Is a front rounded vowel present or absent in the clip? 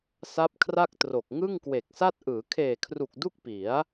absent